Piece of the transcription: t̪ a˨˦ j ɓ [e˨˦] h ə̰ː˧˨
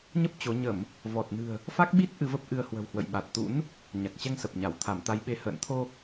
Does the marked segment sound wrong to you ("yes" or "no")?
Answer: no